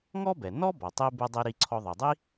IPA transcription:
ŋ ɔ˥ b ɛ˩ n ɔ˥ b ɔ˩ tˤ i˧ b e˧ dˤ i˧ ɾ i˧ ǀʰ ɔ˧ ðˤ i˩ dˤ i˥

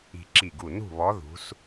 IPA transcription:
i̤˧˩ ǁ i˧˩ ɡ u˧˩ n ṳ˥˨ β ɔ˧˥ ð ṳ˧˥ s

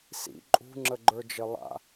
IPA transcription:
s ḭ ǃʼ ṳ ŋ͡ǁ ə ɡ͡ǃ ə˞ d͡ʒ ə lˠ a̰

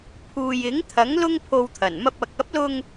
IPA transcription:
pʰ uː˨ j ɪ˨˥ ŋ t̪ʰ ɐ˨˥ ŋ l ʊ˥ ŋ pʰ o˧ w t̪ʰ ɐ˨˩ n m ɐ˧ p̚ ɐ˨ k̚ ɐ˨˥ p̚ l ʊ˧ ŋ

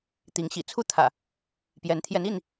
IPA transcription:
t̪ i˨˦ ŋ ɕ ḭ˨˩ t͡sʰ u˥˨ t̪ʰ ä̰˨˩ | p j ɛ˨˦ n t̪ʰ j ɛ˨˦ n i˥˨ n

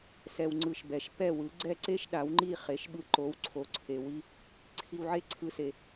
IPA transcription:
s ɛ˧ w ŋ͡ǀ ɯ˧ ʃ b ɛ˩˥ ʃ p ɛ˥˩ w ɯ˩˥ ɡ͡ǀ ɛ˥˩ ǀ e˥ ʃ ɗ a˩˥ w ŋ͡ǃ i˥˩ χ e˩˥ ʃ ɓ ɯ˧ ǃ o˩˥ w ǀʰ o˩˥ ǀʰ e˩ w i˧ | ǀʰ i˧ w ʕ e˥ ǀʰ ɯ˧ s e˩

